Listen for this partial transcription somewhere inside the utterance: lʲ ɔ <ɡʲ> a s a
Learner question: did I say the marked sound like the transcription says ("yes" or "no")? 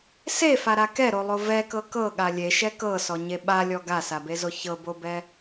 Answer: no